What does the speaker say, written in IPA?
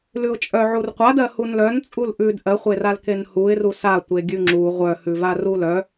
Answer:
lʉʊ̯t͡ʃʼœ ʕurqʷadɜ hunlœn t͡sʼulʔʉd ʔɜχʷeral kenhuɪ̯ru sa tʷeɡʲʉŋ͡ǁu ʁʷœhʉva rulœ

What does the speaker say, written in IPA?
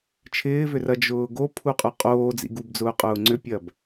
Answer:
t͡ʃʰɪːvʏrɐ d͡ʒʊːɡo pʰuqʼʊqʼoː d͡zḭɡubd͡zʊːqʼʊː ŋ͡ǀʏpʲɐb

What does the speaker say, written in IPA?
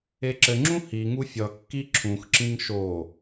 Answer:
eǁɘŋ͡ǁũ hiŋu fʲʌkːi ǁʰũxǁĩŋ ʃo

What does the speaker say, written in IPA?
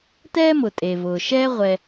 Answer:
tɛː˥mʊ˩tʼe˩vʊː˩ ʃɛː˥ ʁʷɛ˩

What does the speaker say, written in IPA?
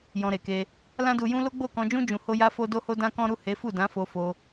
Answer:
jɔ̃˧ɾe˨ke˧ | lã˦du˧jũ˦ lo˦ɡ͡bo˦˨kɔ̃˧d͡ʒũ˦ d͡ʒũ˧ho˦ja˦fo˦ do˦ho˦dã˦kɔ̃˦ ɾu˦˨he˨˦fu˦˨dã˨˦ fo˧fo˧

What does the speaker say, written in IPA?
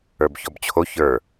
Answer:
ə˞bçɔbt͡ɕʰo çə˞

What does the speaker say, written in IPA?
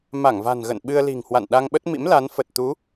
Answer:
ma˧˩ŋva̤˨˩nɣə̰˧˨n ɓɨ˧ə̯li̤˨˩ŋhwa̰˧˨n ɗa˧ŋɓə˦˥t̚mḭ˧˥mla˨˦n fə˨˩t̚ t̪u˨˦

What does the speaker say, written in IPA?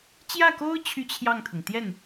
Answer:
t͡ɕjä˥˩ko˥ʊ̯ t͡ɕʰy˥t͡ɕʰjɑ˥˩ŋt̪ʰʊ˩ŋ t̪jɛ˥˩n

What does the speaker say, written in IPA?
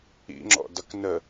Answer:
ḭŋ͡ǁɔ̰dʌk nə

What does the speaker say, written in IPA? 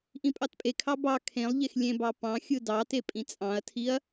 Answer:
ʔĩpʼɑtpʼekʰɑ bɑ kʰẽlˠʎex lʲẽbɑ pɑ̃xʲɯ dɑte pʼĩt͡sʼɑ̃ɐ̯tʰiɐ̯

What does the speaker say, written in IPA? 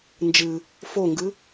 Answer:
nd͡ʒɨ | foŋɡɨ

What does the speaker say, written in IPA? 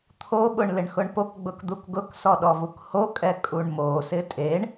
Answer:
t̪ʰoɓʊɳ lɪɳxʊɳpokɡ͡bʊk d̪ukɡʊksɔ ɗɔvukhokʼɛ kʼuɳmosɪ tʼeɳ

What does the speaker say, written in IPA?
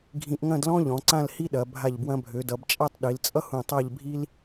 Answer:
ɡʱĩ˧ʔŋɐ̃˥˧dlɔ̃˥ʎɔ̃˩˧ ǀã˥˧lhi˥ɗɐ˩˧ bʱa˧˩ʎbwɐ̃˧bʱø˩˧dʌ˩˧b t͡ʃʼa˥˧tˤɗi˩˧lt͡sʼʌ˥hũ˧˩ tˤa˥˧ʎ bʱi˥l

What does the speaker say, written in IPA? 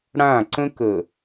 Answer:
ɽã˦˨ǀə̃˦k ə˨

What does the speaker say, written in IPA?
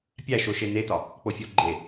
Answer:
pʲæʃoʃe netɒ | k͡pofʲoɡ͡ǃe

